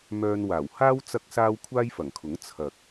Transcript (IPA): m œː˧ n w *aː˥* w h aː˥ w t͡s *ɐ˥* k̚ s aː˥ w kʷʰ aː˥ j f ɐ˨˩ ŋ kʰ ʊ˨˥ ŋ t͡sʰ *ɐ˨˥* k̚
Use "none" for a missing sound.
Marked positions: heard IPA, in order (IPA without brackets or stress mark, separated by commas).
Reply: aː˨˩, ɐ˥, ɐ˨